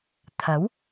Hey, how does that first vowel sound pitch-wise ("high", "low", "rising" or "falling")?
rising